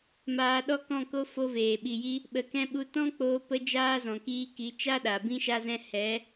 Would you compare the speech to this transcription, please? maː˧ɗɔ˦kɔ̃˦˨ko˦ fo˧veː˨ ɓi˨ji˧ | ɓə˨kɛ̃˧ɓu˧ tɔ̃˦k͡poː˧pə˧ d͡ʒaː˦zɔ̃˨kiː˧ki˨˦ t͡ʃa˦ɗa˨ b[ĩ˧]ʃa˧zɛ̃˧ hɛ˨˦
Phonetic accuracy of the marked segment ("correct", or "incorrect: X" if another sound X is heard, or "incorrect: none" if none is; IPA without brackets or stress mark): correct